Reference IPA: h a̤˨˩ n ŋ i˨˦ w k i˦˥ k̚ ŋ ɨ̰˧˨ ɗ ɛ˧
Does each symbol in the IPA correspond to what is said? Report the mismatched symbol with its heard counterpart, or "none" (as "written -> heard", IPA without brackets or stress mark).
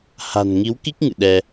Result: none